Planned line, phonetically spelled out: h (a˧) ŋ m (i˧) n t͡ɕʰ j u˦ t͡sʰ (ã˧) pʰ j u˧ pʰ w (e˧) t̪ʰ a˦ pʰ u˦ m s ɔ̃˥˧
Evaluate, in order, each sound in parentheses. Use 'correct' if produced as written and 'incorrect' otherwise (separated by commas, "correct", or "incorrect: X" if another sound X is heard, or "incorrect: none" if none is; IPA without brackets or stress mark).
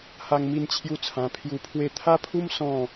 correct, correct, correct, incorrect: e˥˧